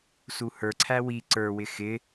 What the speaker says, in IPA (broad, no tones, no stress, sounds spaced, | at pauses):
s u h ə˞ ǀʰ æ w i ǀ ə˞ w ɪ x ɪ